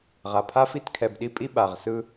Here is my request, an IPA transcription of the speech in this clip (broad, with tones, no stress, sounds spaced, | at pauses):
ʁ a˨ pʰ a˦ f i˦ t kʰ ɛ˨ b ɗ i˦ pʼ i˦ ɓ a˨ ʁ s ɯ˦